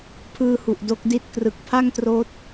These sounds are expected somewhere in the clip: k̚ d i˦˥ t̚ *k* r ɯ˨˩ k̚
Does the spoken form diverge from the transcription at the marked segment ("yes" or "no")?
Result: no